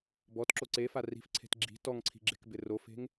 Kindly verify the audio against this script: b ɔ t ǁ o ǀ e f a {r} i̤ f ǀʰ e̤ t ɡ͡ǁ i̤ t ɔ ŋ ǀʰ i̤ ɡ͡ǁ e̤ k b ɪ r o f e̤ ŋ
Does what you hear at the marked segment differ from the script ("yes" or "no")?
no